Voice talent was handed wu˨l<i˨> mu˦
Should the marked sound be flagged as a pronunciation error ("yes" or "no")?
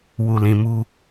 yes